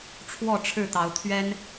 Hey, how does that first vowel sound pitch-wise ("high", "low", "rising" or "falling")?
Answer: falling